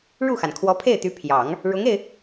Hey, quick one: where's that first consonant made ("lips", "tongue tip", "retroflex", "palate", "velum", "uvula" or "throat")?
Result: retroflex